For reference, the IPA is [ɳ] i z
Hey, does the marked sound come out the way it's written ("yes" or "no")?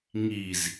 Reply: no